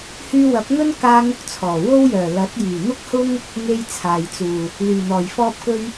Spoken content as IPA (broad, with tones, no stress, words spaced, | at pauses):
hyː˧wɐ˨˥p̚ŋɵ˥n kaː˥ŋʊ˥k̚t͡sʰɔː˨˩ wo˥wjœː˨˩ lɐ˨˥t̚ jyː˨˩n̪ʊ˥k̚hʊ˥ŋ | ŋe˥jt͡sʰaː˨jt͡suː˨˩ | lyː˨˩n̪ɔː˨˩jfɔː˥p̚kɵ˥ɥ